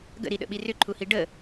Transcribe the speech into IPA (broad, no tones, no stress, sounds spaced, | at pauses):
ɡ ə̰ ɾ i ɗ ə̰ ɓ i r ʏ ǃʰ u h i ɖ ə